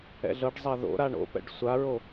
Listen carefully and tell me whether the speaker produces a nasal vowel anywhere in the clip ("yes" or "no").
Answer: no